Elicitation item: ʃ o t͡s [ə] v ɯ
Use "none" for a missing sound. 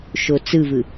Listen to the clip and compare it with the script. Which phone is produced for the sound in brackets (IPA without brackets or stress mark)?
ɯ